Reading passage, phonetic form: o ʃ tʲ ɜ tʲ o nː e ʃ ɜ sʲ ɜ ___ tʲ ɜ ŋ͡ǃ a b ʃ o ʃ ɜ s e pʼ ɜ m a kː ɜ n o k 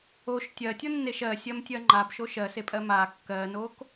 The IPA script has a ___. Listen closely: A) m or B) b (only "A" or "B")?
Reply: A